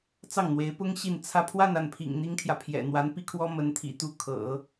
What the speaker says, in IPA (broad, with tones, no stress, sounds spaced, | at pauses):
t͡s ɑ˥˩ ŋ n̪ w e˧˥ ɪ̯ p ʊ˥ ŋ ɕ i˥˧ n t͡sʰ ä˥˧ pʰ w a˥˧ n a˥˩ n pʰ ḭ˨˩ ŋ n̪ i˥ ŋ t̪ʰ j ä˨ pʰ j ɛ̰˨˩ n̪ w a˧˥ n p i˥ kʰ w ɔ˥ m ə˧˥ n t̪ʰ ḭ˨˩ t̪ u˥˩ kʰ ɤ̰˨˩˦